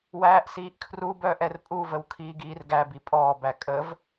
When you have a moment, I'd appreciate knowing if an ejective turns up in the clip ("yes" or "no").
yes